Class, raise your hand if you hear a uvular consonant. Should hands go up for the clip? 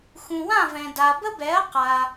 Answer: yes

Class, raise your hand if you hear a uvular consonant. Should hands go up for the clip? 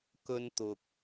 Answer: no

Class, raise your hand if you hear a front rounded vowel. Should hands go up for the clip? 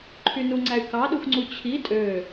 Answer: yes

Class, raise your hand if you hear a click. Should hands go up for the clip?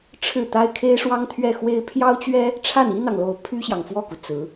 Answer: no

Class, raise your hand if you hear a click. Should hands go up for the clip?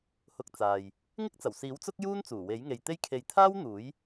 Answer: no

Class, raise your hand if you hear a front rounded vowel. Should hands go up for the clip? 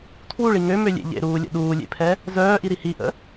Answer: yes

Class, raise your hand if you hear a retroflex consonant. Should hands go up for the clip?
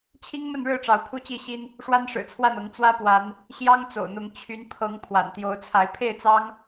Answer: yes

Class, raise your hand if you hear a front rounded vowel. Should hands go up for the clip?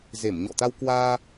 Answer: no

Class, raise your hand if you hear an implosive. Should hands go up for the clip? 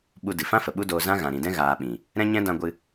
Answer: yes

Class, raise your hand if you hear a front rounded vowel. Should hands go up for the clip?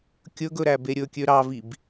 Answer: yes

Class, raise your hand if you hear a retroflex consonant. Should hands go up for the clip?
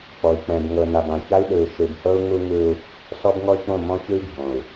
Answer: no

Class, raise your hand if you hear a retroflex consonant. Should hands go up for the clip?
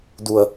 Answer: no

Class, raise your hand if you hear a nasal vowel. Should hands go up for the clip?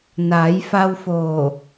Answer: no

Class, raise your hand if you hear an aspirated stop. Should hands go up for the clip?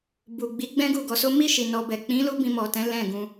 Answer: no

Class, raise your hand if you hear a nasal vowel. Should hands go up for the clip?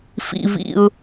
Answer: no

